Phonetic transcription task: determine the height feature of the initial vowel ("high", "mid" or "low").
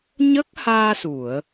mid